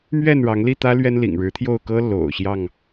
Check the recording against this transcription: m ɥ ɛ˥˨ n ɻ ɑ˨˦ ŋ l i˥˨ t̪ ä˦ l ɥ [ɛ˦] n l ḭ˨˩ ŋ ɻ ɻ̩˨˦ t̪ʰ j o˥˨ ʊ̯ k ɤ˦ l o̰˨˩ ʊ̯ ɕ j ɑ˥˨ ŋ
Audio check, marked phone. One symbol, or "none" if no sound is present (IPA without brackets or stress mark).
ɛ˦